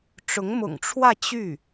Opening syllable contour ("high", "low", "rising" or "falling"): rising